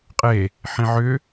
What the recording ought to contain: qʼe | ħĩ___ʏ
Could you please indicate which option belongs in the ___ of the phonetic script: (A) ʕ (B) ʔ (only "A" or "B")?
A